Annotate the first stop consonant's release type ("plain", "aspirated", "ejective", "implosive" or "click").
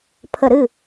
aspirated